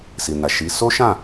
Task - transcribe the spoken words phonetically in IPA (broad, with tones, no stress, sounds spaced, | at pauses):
s i˨ n a˨ ʃ i˨˦ s o˦ ʃ ã˦˨